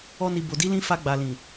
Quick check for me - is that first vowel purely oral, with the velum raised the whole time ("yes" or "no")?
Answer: yes